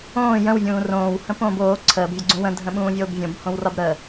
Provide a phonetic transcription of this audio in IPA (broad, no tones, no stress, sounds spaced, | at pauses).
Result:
õː j ə̃ w vʲ ũː r õː w h ə̃ p õː b oː ǀʰ əː b vʲ ə ɡ͡ǀ ũ w ə̃ dʱ ə̃ ɓ ũː vʲ oː b vʲ õ b h õ w r ɒ b ɾ ə